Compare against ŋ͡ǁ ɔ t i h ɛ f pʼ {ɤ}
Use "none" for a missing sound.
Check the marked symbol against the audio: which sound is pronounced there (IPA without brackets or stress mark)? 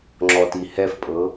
ɤ